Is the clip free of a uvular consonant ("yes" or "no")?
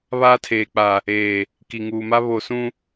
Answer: yes